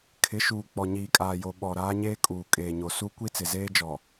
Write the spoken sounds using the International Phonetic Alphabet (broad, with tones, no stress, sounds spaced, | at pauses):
kʰ ɪ˨˦ ʃ uː˨ k͡p ɔ˨ ɲ iː˨ kʼ aː˨ j o˨ ɓ ɔ˨ ɾ aː˦ ɲ eː˦ kʼ uː˨ kʼ eː˨ ɲ o˨ s u˦ kʷ i˦ t͡s ɪ˨ z eː˦ d͡ʒ ɔ˨